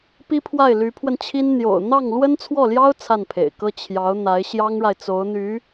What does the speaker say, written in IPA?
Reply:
pi˥pʰwa˥˩ɪ̯ ly˧˥pʰwə˧nt͡ɕʰi˥n n̪jo̰˨˩ʊ̯ n̪ɑ˥˩ŋ lwə˥nt͡sʰwɔ˥˩ljɑ˥ʊ̯ t͡sʰa˥˩npʰḛ˨˩ɪ̯kɤ˥ t͡ɕʰjɑ˧˥ʊ̯ n̪a˧˥ɪ̯ɕjɑ˥ŋɻa˨ɪ̯ t͡so˧˥ʊ̯n̪y˧˥

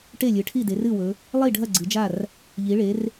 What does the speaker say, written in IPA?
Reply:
ʈe˥˩lʲɨ˩˧ʈʰi˥˩de˩˧r ɨ˥˩wɵ˩˧ | lˠi˥˩ɖʱɐ˥˩ ɡ͡ǀɨ˩˧d͡ʒa˥˩r | ʎi˩˧ɭe˩˧r

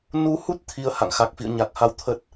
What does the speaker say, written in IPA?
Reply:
nu˨˦hu˦˥t̚ t̪ʰi˧ə̯ ha̰˧˨ŋxa˨˩k̚ fḭ˧˨ə̯ɲa˨˩k̚ha˨˦w t̪ʰə˦˥t̚

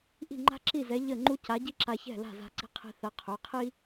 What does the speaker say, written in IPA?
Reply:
ʔi̤˥˩ŋ͡ǃa̤˥ǁi˥˩zɛ˨˥ ʎə˥˩ŋ͡ǃu˥ ca˨˥ɟi˥ǁa˧ çɛ̤˥˩la̤˥˩ za̤˧ǀi̤˧qʰi̤˧ θɐ˨˥qʰø˩˧˩ qʰi˥

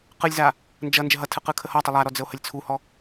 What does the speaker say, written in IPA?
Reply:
qɯlʲza | nd͡ʒʌ nd͡ʒəɦʌtʰɯ qɯkʰəhɒtˤə lˠaɾɔ d͡zəo̯həlʲt͡sʰuhɔ

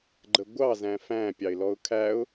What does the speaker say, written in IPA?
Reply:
ɡ͡ǃəɡʷɑ zæ̃fæ̃ pʲɑɪ̯lɔʊ̯kʰæʊ̯

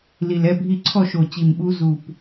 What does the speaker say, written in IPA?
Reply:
li˨˩lɛ˥˨bʱi˥˨ ǀʰɔ˥˨ʃo˨˩t͡ɕi˨˩mɓu˧˥ zu˥˨p

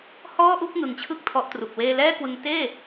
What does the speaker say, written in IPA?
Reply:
hɔː˥˩ʔu˥˩k̚ ŋɯ˩˦ŋt͡ɕʰɯ˦˥k̚ tʰɔ˦˥ʔtru˨˩k̚weː˥˩ lɛː˥˩kwɯ˧ŋ teː˥˩

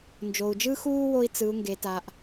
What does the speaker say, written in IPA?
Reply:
nd͡ʒo˩u̯d͡ʒɯː˥xuː˥ wo˥i̯ t͡sɯ˩˧u̯ ŋɡe˩˧ta˩˧ʔ

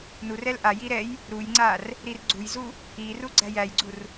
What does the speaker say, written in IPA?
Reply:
nurɛl ʔaji ɾɛj | ɾujŋ͡ǀar | ɾirɡ͡ǀujzu | iru ɡ͡ǀæjæjɡ͡ǀur

